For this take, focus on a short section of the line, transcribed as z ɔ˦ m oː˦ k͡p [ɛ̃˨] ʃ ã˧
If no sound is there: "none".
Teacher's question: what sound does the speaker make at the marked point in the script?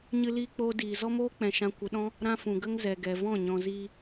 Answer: ɛ̃˨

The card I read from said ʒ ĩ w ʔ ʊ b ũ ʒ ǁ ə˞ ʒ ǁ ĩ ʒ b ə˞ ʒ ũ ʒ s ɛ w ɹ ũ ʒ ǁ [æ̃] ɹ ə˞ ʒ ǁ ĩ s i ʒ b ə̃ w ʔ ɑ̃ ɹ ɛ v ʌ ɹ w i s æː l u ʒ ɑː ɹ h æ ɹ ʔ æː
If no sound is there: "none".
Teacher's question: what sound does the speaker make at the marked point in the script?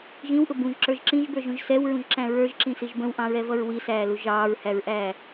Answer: æ̃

